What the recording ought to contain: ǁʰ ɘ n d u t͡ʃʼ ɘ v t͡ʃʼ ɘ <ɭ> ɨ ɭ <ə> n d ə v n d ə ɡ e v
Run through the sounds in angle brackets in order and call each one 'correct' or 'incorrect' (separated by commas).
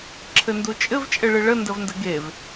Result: correct, correct